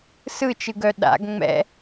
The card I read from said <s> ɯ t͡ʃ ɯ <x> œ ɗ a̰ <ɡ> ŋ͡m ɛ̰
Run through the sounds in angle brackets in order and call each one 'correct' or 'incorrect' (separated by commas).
correct, incorrect, correct